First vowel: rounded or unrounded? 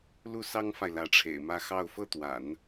rounded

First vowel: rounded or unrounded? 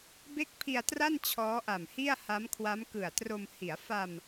unrounded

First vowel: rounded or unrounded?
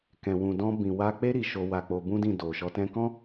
unrounded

